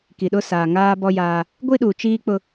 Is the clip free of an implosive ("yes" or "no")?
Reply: no